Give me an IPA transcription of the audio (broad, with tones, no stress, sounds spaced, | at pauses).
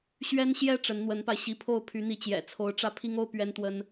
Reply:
ɕ ɥ ɛ˥ n ɕ j ɛ˥ ʈ͡ʂ ə˧˥ n n̪ w ə˧˥ n p a˧ ɪ̯ ɕ i˧˥ pʰ o˥˩ ʊ̯ pʰ y˧˥ n̪ i˧˥ t͡ɕ j ɛ̰˨˩ t͡sʰ o˧˥ ʊ̯ ʈ͡ʂ ä˥˩ pʰ i˥ ŋ o˥ ʊ̯ p ɥ ɛ˥ n t̪ w ə˥ n